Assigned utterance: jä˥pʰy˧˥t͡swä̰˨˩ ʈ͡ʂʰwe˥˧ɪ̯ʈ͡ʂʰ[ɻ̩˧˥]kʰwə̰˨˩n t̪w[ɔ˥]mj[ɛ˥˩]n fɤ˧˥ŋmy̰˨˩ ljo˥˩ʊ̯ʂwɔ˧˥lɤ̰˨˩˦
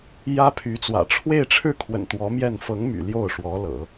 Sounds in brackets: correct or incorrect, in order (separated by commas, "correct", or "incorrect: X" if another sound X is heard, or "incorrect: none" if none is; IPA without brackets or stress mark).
incorrect: ɻ̩˥˩, incorrect: ɔ˧˥, correct